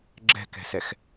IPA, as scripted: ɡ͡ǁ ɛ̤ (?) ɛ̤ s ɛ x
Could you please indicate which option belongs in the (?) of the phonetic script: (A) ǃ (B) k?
B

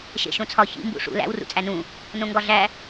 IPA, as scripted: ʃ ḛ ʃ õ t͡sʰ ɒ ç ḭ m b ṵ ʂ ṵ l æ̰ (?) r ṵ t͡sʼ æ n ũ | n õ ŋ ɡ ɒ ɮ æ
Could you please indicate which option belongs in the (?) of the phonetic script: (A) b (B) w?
B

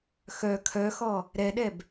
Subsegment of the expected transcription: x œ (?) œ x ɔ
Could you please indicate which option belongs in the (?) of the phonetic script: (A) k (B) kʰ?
B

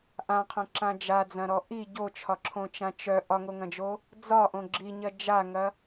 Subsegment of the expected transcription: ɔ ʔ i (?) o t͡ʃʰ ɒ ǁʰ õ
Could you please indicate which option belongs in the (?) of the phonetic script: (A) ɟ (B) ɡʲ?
A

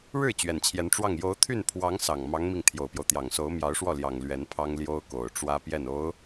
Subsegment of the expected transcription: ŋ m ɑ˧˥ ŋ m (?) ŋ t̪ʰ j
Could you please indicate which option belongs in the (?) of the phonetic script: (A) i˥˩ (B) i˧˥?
A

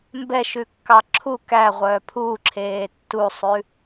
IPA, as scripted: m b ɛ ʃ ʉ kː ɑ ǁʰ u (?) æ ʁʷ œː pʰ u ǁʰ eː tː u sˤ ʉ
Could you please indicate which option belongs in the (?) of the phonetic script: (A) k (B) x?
A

